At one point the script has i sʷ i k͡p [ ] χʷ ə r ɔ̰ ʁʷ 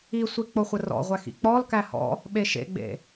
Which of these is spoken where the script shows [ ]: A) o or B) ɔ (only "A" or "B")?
A